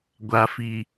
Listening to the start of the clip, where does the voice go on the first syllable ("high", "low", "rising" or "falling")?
low